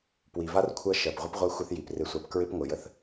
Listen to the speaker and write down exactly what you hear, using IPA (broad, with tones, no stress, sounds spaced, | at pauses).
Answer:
p w i˩ v a˥ r kʷʰ ɜ˦ ʃ ɜ˩ p ʁʷ ə˥ p ʁʷ ɜ˦ xʷ ɪ˦ θ j i˩ p r ɪ˨ sʷ a˨ p k ɹ ɪ˥ p ŋʷ ɪ˩ j ə˦ θ